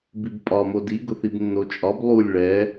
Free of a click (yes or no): yes